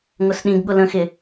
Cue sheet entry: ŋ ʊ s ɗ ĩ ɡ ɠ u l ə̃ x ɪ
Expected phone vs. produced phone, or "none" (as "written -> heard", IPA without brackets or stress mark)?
u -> ʊ